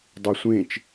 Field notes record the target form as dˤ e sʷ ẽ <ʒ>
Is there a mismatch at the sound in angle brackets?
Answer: yes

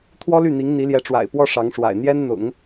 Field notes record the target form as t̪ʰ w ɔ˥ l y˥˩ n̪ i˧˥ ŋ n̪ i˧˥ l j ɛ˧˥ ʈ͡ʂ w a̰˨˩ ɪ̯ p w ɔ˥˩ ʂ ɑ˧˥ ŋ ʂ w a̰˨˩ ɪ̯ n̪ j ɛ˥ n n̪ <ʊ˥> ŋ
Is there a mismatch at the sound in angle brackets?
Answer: yes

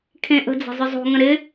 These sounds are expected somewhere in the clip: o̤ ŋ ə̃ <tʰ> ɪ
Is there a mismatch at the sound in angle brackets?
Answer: yes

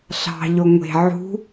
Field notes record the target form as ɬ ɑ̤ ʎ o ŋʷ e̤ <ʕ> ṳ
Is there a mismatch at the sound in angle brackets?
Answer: no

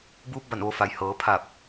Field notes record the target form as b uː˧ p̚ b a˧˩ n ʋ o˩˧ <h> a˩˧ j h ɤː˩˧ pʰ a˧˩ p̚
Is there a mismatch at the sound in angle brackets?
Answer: yes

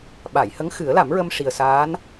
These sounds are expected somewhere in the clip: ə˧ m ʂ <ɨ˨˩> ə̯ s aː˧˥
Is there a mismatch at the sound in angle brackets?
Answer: yes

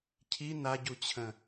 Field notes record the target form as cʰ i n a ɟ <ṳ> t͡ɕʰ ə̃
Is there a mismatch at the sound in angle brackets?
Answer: yes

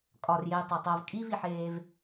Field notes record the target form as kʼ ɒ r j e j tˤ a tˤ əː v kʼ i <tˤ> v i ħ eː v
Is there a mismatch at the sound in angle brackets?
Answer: yes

